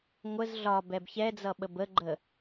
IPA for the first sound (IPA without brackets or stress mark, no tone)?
ŋʷ